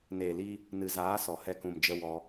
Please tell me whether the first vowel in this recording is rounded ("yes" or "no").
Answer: no